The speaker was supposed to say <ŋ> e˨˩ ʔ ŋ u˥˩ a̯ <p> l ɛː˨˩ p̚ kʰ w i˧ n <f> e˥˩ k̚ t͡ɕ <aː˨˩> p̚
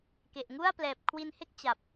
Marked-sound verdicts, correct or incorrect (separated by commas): incorrect, correct, incorrect, incorrect